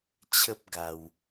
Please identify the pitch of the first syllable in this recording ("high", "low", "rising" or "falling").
high